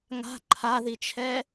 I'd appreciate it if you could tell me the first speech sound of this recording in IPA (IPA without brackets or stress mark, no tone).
ŋ